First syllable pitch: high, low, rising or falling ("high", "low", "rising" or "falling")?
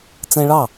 high